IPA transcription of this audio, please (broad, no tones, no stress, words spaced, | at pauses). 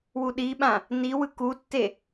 wuɗiɓã | niwɯ kutːe